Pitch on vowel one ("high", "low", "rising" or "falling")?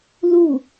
falling